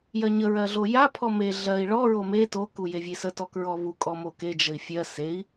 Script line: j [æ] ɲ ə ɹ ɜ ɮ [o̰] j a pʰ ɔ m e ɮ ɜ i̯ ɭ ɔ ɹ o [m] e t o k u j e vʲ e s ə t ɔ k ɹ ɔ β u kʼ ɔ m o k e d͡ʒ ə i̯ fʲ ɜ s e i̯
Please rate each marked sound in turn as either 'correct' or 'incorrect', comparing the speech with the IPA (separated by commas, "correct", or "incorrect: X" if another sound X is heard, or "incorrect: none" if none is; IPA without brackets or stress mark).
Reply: incorrect: ɜ, incorrect: o, correct